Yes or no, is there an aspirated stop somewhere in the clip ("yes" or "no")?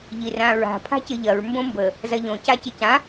yes